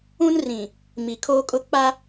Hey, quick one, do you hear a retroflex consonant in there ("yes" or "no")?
no